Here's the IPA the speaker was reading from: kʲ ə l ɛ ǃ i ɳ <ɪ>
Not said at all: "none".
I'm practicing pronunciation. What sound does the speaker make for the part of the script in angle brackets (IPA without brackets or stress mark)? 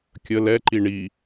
i